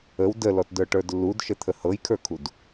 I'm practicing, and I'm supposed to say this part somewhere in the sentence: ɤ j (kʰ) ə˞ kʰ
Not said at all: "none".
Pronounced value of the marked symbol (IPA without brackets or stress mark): kʰ